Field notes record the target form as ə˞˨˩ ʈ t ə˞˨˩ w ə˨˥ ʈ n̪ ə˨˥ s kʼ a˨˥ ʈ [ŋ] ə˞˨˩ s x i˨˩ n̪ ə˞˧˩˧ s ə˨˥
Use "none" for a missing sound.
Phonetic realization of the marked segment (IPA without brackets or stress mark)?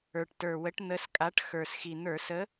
x